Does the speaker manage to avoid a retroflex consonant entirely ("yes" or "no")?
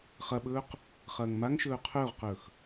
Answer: yes